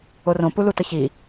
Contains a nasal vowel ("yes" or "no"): yes